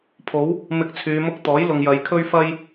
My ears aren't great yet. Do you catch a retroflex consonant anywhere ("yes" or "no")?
no